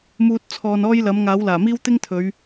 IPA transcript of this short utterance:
muː˧t̚ t͡sʰɔː˧nɔː˥jlɐ˨˥m ŋaː˨˥wlaː˨˩miː˥w t̪ɪ˥ŋt̪ʰɵ˨˧ɥ

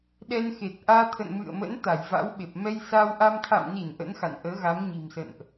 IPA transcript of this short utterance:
ɗɛ˧nxe˨˩t̚ʔaː˧ t̪ʰə̰˧˨nmɨ̰˧˨ə̯mə̰˧˥n t̪a˧˩jva̰˧˥wɓe˨˩p̚ mɛ˧jsa˧wʔa˧m t̪ʰa̰˧˨mni˧˩n ʔə̰˧˥nxa̰˧˨nʔəː˨˦ɣa˨˦m ɲi̤˨˩msə̰˧˨nʔ

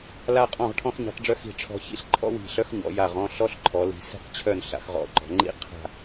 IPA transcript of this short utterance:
la˧ qʼɔ̃˧˩ʁʈʰɔ̃˧xɲi̤˩˧qɖ͡ʐœ˧ xi̤˧˩ʈ͡ʂʰɔ̤˧ çḭ˥ɬǃʰɔ̰˥wi̤˧˩ ɬœ˥xɲɔ̰˩˧ ja˧˩ʁɔ̃˥˧ ɬɔ˥ɬǃʰɔ˩˧li̤˧ si̤˥˧q t͡ɕʰœ˥˧n ɬa̰˧xʁɔ̰˧˩ǃɔ̤˩˧ ŋ͡ǃḭ˥ qʰa̤˥˧

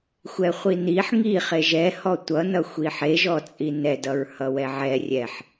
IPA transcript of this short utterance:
xʷɛχʷiniħ ŋi χeʒɛ hɔtʷʌ nʌxʷiħe ʒɔt͡sʼinɛ dʌɹhʌwɛʕɛ rʲɛħ

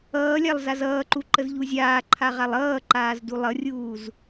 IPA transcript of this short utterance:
ʌːlʲalˠ zazʌːǃu ǃəzʎuzʲaːǃʰa ʁalˠʌːǃaːz dulˠʌrʲuːz

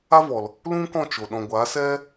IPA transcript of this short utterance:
a˦vɔ˨l | lũ˦kɔ̃˦˨t͡ʃo˨ ɗɔ̃˨ɡʷa˨˦sɛ˦

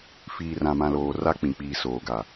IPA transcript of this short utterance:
fiː˨rã˨mã˨loː˨ ra˦ k͡pĩ˨k͡piː˨soː˨ ɡa˨

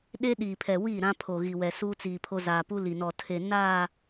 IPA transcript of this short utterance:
ɗe˦ ɗiː˨pʰɛ˨wiː˦˨ ɾã˦pʰo˨ɣi˨wɛ˨ suː˦t͡siː˨pʰo˦ zaː˨pu˦li˨nɔ˨ tʰe˨ naː˦˨

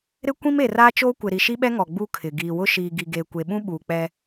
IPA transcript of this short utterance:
ɾɪ˦ kʷĩ˦me˨raː˦t͡ʃoː˦ kʷɪ˨ɾi˨ʃi˦ɓɛ˦ ŋɔ˨ ɡ͡bu˦kʰɪ˨ ɡiː˨wʊ˦ʃiː˨ ɡi˨ɡeː˨kʷe˨ɓũ˦ ɓuː˨k͡pɛ˦

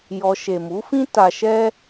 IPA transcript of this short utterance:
jɔ˧ ʃe˨mu˨˦fĩ˦ ta˧ʃɛ˦

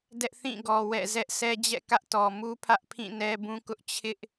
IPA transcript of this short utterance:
dɛ˦ʔθĩ˦˨ɡɔ˨ wɛ̰˦˨ zɛ˦ʔsɛ˦d͡ʑɛ̰˦˨kä˦ʔ tɔ˨mu˦ pʰä˦ʔpʰĩ˦˨ nɛ˦bũ˦kʊ˦ʔ t͡ɕʰɪ˦ʔ

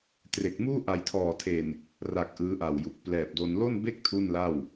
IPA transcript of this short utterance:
tre˨˩k̚muː˥˩ ʔa˨˩jtʰɔː˨˩tʰe˨˩n | ra˨˩k̚ ʔɯː˦˥ʔa˨˩wju˨˩k̚ plɛː˨˩p̚do˧n lo˥˩nbe˥˩k̚ tʰu˥˩nla˥˩w

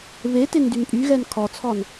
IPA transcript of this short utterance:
βetendyn pʼyɣɛn kʰɔt͡sʰɔn

